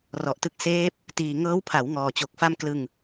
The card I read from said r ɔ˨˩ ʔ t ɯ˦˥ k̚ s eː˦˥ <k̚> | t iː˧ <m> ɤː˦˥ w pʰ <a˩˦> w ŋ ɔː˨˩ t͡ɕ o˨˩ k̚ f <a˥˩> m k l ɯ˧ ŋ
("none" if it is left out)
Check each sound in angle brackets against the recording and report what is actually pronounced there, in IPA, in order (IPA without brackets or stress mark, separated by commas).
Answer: p̚, ŋ, a˩˦, a˥˩